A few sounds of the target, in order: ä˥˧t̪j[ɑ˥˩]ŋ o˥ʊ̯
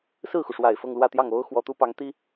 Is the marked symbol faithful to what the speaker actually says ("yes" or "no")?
yes